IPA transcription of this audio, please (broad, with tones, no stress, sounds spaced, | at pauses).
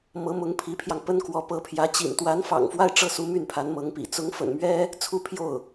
m ɤ˧˥ m ʊ˧˥ ŋ pʰ i˧˥ pʰ j ɑ˧ ŋ p ə˥ n k w ɔ˧˥ p ɤ˧˥ pʰ j ä˧˥ t͡ɕ ḭ˨˩ n t̪ w a˧˥ n f ɑ̰˨˩ ŋ f w a˥˧ ɪ̯ ʈ͡ʂ ɤ˥˩ s u˧˥ m y˥˩ n pʰ a˧˥ n m ɤ˧˥ ŋ p ḭ˨˩ t͡s ʊ˧˥ ŋ f ə̰˨˩ n m ɥ ɛ˥ | t͡sʰ u˥˧ pʰ j o˥˩ ʊ̯